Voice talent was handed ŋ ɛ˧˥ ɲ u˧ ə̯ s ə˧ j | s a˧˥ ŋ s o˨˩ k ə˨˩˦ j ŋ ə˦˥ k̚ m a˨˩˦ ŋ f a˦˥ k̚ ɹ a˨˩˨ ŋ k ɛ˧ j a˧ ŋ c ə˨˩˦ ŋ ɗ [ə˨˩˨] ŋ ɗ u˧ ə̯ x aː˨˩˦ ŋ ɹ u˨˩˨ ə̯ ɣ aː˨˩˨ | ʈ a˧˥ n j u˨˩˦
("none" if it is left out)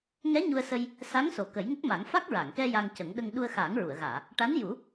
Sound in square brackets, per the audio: ə˧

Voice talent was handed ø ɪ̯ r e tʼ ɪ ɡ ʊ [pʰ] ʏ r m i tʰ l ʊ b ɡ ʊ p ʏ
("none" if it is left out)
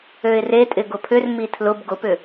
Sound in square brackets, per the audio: pʰ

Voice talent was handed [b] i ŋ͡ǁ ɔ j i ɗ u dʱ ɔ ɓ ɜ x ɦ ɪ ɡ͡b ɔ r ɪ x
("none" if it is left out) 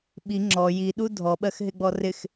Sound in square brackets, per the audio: ɓ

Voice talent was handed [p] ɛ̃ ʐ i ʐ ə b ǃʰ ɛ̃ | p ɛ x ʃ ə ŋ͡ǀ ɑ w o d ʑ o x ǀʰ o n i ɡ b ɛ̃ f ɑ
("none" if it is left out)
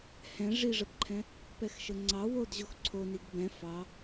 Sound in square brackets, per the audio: h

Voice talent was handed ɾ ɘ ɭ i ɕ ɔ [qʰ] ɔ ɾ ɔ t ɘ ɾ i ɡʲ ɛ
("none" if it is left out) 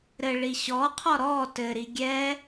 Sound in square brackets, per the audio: qʰ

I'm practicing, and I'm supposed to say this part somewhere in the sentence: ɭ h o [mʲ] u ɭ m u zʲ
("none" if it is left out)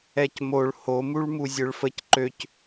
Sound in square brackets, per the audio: m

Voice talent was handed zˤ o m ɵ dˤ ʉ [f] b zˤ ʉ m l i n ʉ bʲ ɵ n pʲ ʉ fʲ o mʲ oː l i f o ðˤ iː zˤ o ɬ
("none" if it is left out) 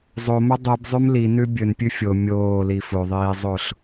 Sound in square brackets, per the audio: none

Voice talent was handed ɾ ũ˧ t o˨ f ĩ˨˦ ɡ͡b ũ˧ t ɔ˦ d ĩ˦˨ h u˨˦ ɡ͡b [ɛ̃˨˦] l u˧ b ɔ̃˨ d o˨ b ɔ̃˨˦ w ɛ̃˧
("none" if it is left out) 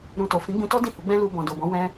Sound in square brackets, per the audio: ɛ̃˦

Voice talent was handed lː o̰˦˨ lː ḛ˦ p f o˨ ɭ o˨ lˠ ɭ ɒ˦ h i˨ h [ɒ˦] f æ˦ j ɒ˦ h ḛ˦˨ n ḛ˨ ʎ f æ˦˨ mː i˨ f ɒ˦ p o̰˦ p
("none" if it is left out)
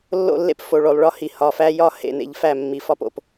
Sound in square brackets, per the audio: ɒ˨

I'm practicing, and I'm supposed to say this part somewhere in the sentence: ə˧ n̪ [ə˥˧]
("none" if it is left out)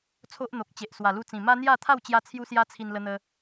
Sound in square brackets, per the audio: ə˧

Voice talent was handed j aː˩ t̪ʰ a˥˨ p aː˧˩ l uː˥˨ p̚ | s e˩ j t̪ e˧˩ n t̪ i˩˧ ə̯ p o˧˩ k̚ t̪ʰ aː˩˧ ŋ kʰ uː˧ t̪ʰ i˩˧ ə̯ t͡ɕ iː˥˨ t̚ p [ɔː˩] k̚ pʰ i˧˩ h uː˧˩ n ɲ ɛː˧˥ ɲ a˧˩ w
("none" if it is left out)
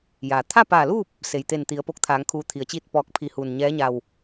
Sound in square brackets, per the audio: ɔː˧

